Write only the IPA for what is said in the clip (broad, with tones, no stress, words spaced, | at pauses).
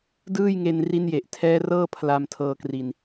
dɯː˥˩jŋe˧nri˦˥nje˨˩ʔ tʰɛː˦˥rɤː˥˩ pʰla˧mtʰɤː˧kri˧n